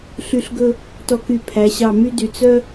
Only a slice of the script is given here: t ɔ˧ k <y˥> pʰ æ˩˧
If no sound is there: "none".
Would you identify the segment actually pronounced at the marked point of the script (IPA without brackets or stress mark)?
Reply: y˧˩